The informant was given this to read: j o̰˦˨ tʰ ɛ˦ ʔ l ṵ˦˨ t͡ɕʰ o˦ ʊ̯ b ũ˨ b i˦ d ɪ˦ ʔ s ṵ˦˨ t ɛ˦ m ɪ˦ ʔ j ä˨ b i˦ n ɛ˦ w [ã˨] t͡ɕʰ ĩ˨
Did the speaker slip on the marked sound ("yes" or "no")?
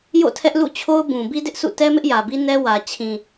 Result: yes